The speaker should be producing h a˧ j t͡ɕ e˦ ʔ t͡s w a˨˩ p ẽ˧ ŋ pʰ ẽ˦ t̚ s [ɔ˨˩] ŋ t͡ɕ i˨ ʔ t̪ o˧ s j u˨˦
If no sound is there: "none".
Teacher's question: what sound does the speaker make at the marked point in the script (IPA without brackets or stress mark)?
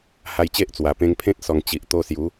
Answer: ɔ˨˩